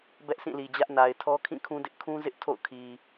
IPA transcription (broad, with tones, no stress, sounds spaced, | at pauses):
b ɛ˦ ʔ sʰ ĩ˦˨ l i˨ d͡ʑ ä˦ ʔ n a˨ ɪ̯ tʰ ɔ˦ kʰ ĩ˦˨ kʰ ũ˦ d ɪ˦ ʔ kʰ ũ˦ z ɪ˦ ʔ tʰ o̰˦˨ ʊ̯ kʰ i˨